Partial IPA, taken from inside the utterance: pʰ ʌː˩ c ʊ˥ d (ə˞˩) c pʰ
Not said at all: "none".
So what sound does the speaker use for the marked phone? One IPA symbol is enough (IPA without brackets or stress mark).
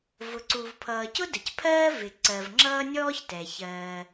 ə˩